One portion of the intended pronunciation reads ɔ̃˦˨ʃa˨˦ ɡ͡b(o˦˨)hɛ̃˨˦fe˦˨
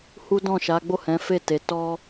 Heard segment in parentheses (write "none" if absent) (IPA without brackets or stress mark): o˦˨